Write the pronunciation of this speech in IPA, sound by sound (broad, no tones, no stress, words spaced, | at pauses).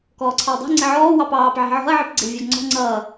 kɔːǀʰɑwdˤæ̤ ŋ͡ǀɪʕɔː wɑpɑːp ʕi̤ʕɔ̤ɐ̯ ʕipɡ͡ǀɪwvʲɑɡŋ͡ǀɔ̤ ŋ͡ǀʌː